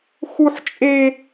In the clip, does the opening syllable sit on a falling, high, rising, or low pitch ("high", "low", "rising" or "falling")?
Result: high